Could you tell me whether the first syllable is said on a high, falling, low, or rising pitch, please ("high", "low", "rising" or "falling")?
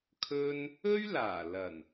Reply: high